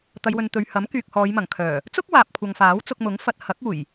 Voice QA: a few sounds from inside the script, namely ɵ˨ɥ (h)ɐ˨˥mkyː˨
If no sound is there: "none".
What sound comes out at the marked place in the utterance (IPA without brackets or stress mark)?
h